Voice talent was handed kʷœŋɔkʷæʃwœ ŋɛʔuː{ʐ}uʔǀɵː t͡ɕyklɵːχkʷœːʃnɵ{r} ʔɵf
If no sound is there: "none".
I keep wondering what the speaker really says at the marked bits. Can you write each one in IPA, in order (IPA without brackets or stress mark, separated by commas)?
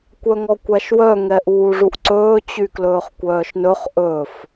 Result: ʐ, χ